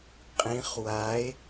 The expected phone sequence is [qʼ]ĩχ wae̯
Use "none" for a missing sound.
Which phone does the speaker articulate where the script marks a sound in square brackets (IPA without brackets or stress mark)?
qʼ